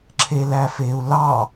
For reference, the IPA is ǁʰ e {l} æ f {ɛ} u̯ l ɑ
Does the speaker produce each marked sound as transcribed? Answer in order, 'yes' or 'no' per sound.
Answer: yes, no

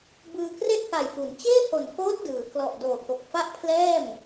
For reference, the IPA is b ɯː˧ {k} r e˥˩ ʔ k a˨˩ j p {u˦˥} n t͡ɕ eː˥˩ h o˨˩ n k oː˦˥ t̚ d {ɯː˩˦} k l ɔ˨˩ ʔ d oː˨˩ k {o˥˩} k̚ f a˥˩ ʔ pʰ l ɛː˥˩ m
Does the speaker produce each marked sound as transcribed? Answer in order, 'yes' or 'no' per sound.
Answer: yes, no, yes, no

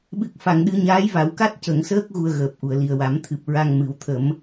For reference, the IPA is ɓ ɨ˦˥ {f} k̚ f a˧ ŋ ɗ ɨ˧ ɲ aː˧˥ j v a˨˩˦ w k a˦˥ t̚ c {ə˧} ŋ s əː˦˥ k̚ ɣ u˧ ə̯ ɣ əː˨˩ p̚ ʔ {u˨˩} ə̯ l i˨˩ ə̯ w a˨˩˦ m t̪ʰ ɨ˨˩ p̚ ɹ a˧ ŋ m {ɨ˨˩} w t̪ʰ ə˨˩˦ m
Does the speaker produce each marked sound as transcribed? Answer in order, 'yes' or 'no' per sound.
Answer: no, no, yes, yes

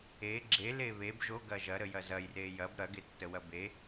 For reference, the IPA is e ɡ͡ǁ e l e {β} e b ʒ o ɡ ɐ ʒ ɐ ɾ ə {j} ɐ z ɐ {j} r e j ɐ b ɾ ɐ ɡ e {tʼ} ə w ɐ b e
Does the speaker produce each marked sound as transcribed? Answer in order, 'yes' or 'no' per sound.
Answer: yes, yes, yes, no

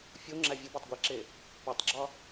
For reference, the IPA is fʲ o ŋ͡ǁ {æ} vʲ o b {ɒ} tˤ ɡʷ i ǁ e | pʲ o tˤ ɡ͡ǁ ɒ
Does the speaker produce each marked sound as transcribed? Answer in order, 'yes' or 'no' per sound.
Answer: yes, yes

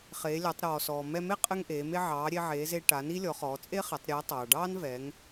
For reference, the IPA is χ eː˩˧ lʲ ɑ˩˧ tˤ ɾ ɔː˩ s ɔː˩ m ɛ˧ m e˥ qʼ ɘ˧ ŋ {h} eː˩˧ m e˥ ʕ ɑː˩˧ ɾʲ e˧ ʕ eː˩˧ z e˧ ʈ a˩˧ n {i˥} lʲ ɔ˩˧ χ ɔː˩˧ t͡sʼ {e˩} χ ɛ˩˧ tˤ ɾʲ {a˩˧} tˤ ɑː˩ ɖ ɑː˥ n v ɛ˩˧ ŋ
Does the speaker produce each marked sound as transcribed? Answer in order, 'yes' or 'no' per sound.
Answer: no, yes, no, no

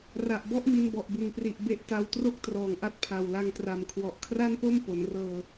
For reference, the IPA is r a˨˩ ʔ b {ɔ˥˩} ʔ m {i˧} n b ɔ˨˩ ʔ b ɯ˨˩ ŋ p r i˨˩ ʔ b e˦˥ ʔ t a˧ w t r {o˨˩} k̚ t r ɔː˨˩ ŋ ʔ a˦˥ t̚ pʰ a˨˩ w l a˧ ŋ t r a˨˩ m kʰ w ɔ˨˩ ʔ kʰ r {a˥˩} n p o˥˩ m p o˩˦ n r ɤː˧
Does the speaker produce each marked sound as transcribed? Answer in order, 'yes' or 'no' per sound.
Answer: yes, yes, no, yes

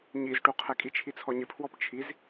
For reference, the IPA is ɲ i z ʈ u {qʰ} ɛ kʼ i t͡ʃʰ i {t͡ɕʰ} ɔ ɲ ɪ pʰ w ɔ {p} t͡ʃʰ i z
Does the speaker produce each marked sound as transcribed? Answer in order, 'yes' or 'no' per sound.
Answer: yes, no, yes

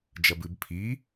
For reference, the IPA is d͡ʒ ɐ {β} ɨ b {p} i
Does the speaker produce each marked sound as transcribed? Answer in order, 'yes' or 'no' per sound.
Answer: no, no

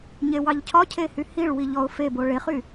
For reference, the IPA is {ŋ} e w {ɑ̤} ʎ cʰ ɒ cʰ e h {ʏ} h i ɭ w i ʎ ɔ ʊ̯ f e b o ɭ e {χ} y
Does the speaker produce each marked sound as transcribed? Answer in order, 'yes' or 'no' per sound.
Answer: no, no, no, yes

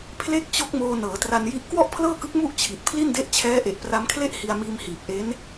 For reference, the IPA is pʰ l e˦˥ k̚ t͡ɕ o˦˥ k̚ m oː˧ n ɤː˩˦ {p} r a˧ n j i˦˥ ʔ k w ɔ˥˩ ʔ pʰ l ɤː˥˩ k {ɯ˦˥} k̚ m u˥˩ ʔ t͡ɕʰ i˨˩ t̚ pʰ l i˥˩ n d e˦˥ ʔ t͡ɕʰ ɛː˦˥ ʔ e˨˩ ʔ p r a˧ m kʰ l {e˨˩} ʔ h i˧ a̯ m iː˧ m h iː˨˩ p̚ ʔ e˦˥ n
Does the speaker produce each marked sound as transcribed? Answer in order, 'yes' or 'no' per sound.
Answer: no, yes, no

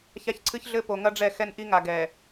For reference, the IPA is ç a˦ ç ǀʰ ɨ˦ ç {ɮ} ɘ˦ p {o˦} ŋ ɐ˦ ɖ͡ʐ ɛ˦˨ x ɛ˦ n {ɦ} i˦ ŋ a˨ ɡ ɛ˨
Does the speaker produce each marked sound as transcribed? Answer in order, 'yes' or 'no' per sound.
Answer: yes, no, no

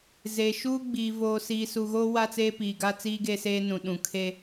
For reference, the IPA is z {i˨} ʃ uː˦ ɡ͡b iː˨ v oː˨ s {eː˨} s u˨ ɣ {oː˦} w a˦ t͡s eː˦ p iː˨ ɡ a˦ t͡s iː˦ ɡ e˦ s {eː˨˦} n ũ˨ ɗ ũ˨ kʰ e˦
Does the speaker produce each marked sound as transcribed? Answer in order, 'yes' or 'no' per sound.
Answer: no, no, yes, no

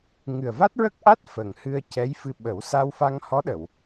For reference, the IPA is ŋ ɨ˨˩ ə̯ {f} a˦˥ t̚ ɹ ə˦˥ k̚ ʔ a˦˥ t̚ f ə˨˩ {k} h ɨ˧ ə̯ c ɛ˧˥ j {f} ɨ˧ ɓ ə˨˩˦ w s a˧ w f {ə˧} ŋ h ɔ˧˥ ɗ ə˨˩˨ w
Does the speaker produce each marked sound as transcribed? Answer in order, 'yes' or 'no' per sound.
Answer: no, no, yes, no

